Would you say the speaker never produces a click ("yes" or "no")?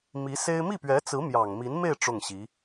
yes